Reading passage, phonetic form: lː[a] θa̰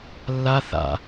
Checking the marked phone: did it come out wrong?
no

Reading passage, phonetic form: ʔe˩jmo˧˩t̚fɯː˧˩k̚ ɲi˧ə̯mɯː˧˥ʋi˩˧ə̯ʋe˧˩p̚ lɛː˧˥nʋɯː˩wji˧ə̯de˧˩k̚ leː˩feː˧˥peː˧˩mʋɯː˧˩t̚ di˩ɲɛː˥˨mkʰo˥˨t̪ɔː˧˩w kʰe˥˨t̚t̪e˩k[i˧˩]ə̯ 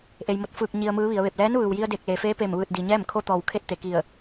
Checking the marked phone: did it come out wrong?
no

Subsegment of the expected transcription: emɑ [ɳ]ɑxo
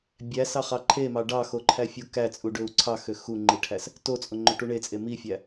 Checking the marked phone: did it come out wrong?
yes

